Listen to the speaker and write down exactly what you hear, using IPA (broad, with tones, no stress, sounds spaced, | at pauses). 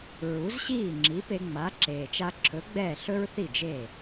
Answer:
ɹ u˩˥ z ɕ iː˥˩ ŋ͡ǁ i˩˥ p e˧ ŋ͡m a˩˥ ǁ eː˩ t͡ʃ a˧ ǁʰ ɵ˩˥ ɡ͡b ɛː˥˩ ɬ ɵ˥ ɹ θ i˥˩ d͡ʒ eː˥˩